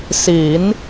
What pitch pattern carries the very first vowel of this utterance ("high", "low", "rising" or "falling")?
rising